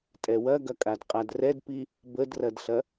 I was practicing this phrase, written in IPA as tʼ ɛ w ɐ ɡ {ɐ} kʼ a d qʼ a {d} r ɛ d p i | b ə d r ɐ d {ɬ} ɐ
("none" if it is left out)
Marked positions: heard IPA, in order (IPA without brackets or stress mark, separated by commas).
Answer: ɐ, d, ɬ